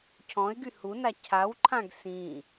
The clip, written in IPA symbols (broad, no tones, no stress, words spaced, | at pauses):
cʰɔ̃ɪ̯ɡy huna cʰawǃʰãɡ sĩ